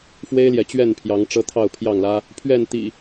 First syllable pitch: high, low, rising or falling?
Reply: high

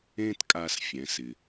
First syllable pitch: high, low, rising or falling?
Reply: high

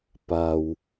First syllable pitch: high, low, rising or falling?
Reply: low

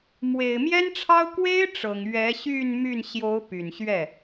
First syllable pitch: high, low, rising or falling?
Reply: low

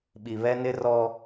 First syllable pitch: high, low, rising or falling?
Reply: low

